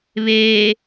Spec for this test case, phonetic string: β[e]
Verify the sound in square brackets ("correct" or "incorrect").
correct